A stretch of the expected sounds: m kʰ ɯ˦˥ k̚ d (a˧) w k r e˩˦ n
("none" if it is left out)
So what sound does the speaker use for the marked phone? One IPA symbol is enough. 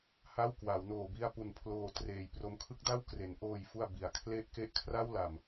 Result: a˥˩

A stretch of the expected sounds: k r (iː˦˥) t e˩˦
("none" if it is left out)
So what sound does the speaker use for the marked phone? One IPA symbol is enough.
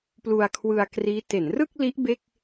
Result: iː˦˥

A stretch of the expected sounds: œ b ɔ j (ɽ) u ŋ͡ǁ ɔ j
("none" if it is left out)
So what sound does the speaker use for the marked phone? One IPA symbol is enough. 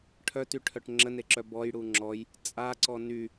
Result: ɽ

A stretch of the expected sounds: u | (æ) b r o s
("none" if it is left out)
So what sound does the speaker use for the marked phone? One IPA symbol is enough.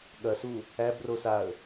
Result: æ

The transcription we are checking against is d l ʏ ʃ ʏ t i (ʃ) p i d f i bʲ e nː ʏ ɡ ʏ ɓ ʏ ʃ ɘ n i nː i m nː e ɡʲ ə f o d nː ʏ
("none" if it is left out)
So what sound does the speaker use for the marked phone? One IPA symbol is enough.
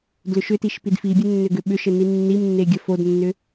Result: ʃ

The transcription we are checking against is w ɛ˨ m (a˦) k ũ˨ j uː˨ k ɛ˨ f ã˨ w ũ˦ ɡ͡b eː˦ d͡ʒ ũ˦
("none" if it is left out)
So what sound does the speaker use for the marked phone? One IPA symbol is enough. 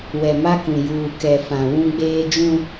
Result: a˦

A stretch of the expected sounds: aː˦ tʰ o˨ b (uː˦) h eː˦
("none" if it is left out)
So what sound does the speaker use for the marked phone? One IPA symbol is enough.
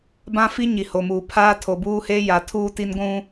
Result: uː˦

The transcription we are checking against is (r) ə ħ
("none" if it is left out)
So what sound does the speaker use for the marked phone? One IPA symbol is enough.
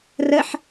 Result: r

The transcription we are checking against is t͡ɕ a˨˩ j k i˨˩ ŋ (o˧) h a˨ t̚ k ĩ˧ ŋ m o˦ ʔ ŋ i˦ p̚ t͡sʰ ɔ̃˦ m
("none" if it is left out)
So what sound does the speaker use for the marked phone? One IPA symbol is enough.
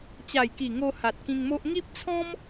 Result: o˧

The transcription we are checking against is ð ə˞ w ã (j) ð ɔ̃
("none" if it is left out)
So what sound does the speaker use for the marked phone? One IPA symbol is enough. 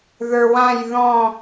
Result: j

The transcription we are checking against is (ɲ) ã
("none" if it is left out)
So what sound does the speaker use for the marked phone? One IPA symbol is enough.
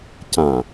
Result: c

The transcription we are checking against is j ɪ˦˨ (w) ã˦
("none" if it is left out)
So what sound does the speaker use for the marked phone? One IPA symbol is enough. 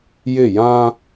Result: j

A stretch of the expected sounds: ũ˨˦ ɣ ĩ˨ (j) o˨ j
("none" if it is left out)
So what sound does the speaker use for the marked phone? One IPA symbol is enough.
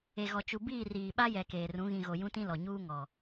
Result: ɣ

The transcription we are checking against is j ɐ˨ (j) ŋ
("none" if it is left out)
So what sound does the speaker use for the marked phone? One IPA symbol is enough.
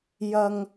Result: none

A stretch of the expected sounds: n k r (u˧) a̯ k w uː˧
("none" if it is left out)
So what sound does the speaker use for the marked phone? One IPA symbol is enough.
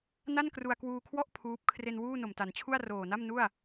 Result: u˧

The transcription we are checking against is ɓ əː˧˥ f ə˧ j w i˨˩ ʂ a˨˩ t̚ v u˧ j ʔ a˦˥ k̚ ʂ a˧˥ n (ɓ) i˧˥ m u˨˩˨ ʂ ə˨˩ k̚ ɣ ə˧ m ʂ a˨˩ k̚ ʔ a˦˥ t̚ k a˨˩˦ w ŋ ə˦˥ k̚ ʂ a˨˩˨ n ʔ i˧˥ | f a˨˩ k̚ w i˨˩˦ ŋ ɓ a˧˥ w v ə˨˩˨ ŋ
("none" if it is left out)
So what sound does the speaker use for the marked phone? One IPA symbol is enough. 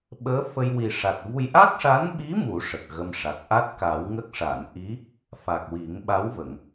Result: ɓ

